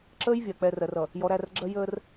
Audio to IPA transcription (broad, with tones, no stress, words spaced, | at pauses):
ǁəː˦jvʲɜ˨ k͡pɛ˨rɜ˨rʌ˨ | jɔ˨ɾæ˦˨rɡ͡ǁɜ˦ jəː˦r